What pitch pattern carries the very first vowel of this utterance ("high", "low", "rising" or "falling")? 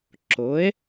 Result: rising